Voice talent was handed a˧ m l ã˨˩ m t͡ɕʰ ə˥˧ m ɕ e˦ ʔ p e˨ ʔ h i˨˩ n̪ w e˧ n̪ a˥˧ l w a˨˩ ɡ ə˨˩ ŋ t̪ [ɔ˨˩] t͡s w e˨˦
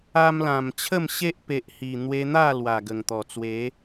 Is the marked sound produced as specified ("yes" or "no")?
yes